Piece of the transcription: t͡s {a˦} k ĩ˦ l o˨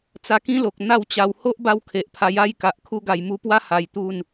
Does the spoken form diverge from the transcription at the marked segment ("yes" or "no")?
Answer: yes